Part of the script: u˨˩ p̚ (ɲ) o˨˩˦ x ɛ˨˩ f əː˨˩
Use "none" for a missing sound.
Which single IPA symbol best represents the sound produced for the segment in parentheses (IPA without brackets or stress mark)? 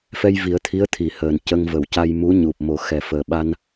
m